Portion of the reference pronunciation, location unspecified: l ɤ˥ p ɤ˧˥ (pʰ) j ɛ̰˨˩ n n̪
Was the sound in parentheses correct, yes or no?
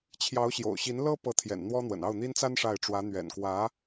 no